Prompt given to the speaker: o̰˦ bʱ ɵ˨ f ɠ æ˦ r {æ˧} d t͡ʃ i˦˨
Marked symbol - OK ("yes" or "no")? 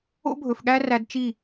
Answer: yes